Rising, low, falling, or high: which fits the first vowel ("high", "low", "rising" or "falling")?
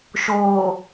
low